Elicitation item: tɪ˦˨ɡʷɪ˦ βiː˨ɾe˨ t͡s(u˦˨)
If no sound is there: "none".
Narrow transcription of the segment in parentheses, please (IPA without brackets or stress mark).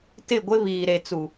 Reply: u˨